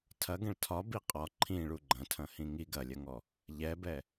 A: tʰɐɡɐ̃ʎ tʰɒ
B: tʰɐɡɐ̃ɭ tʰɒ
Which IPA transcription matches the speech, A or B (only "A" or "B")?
B